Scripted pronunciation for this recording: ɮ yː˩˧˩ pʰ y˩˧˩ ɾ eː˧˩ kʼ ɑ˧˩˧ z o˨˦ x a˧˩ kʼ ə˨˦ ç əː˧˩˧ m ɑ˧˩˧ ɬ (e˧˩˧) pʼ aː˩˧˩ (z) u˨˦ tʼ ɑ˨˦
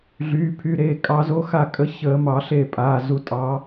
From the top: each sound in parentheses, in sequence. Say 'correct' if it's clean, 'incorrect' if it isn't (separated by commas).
incorrect, correct